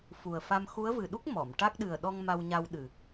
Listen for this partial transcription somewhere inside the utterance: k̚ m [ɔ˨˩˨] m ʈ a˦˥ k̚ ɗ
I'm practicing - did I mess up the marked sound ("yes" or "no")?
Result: no